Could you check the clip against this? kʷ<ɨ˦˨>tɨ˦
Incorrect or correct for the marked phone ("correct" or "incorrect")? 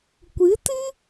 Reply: incorrect